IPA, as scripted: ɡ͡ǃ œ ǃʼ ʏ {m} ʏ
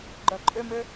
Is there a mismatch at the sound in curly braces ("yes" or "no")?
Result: no